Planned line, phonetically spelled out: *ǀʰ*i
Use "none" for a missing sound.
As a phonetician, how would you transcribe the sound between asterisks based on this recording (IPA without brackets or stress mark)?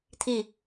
tʰ